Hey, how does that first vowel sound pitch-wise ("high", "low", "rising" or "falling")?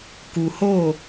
low